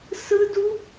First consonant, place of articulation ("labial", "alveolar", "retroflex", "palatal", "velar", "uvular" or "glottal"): alveolar